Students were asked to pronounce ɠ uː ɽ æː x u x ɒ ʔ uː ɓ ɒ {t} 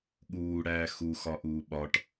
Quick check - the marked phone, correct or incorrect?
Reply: incorrect: ʈ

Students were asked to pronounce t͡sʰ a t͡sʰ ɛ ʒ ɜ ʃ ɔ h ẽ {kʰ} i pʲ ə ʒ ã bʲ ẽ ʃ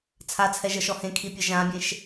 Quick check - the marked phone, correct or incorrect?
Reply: correct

